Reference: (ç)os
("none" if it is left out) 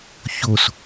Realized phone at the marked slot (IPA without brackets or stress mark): ç